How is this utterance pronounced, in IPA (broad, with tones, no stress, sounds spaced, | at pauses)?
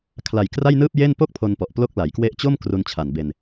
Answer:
kʰ l a˨˩ j k r a˥˩ j n ɯː˥˩ p̚ j e˥˩ n p o˥˩ k̚ pʰ o˧ n p ɔ˨˩ ʔ p l o˦˥ k̚ l a˩˦ j k w e˦˥ ʔ t͡ɕ o˥˩ m k r u˧ n t͡ɕʰ a˨˩ n b e˧ n